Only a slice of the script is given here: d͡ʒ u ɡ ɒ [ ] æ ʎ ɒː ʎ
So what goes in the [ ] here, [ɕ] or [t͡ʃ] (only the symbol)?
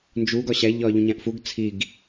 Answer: ɕ